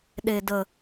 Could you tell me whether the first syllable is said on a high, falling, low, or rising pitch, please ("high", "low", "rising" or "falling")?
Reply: low